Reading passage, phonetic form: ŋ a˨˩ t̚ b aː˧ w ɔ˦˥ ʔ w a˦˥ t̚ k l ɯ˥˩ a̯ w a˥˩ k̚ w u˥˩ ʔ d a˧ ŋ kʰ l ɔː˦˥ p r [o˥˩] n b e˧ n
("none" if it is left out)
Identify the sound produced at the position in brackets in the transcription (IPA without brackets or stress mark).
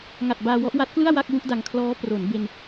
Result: o˩˦